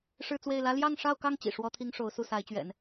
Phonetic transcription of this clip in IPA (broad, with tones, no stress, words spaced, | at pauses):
ʂɻ̩˥˧t͡swe˥˩ɪ̯ lä˥ ljɑ˥˧ŋʂɑ˥˧ʊ̯kɑ˥˩ŋ t͡ɕḭ˨˩ ʂwɔ˥t̪ʰi˥ŋ ʂo˧˥ʊ̯su˥˩sa˧˥ɪ̯t͡ɕɥɛ̰˨˩˦n